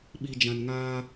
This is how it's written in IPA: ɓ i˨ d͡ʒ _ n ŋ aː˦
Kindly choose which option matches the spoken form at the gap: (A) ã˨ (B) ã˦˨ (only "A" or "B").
A